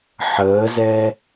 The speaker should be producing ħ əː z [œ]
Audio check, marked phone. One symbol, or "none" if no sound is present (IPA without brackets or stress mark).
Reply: ɛ